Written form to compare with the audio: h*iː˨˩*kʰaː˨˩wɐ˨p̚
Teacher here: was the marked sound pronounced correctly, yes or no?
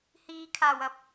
no